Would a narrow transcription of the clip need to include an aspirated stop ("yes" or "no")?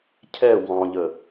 yes